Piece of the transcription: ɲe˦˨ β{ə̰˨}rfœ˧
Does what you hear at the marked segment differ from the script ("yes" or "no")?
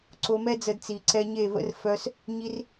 yes